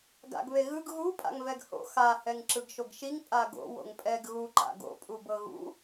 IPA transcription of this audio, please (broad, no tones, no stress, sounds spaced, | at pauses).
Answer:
ɡ a̰ ɡ β e ɣ ɯ ɡ ɣ u pʼ a̰ ŋ v ɛ ɡ h o̰ x a h ɛ ŋ ǁ ɯ ɡ ʃ o ɡ ʃ i ŋ pʼ a ɡ o̰ w o̰ ŋ pʼ ɛ ɡ ɣ u ǃ a̰ ɡ o̰ pʼ u b ɤ ɣ ṵ